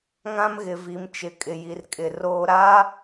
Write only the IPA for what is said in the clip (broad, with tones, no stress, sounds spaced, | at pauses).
ŋ ã˦ m ɣ ɪ˨ v i˨ m t͡ʃ ɪ˨ kʼ ɪ˨ j i˨ r kʼ ɪ˨ r oː˦ ɾ aː˦